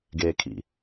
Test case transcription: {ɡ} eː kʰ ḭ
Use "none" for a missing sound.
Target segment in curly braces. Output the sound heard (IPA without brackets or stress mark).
ɡ